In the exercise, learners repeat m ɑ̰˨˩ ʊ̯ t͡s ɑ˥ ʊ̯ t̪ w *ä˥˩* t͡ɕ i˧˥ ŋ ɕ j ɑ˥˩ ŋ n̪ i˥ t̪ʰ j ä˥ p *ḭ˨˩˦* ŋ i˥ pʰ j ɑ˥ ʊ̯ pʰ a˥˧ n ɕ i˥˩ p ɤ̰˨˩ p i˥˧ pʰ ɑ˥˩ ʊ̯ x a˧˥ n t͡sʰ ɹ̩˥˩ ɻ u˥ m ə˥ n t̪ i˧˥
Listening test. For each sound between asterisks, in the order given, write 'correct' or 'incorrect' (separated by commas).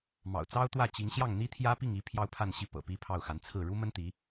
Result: correct, incorrect